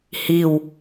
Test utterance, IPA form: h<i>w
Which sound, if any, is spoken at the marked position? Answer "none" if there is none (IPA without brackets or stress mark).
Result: i